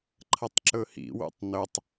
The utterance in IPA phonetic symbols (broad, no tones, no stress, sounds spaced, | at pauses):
ǃʰ ɐ tˤ ǁ ɵ h ḭ w ṵ tˤ n ɵ tˤ